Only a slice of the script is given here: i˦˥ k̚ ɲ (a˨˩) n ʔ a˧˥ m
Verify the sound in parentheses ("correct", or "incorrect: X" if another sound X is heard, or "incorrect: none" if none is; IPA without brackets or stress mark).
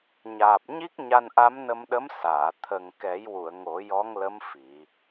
incorrect: a˧